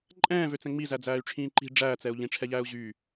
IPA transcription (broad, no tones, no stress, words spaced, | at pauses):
ǃʼɛ̃ːvøt͡sɛ̃ ŋ͡mizæd͡zæːy̯ʈ͡ʂʰĩː ǃi̤ ɖ͡ʐæːt͡sɛu̯ ʎĩʈ͡ʂʰɛʎæːu̯ ʑyː